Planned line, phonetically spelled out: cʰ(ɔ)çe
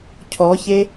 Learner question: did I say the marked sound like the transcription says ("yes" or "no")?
yes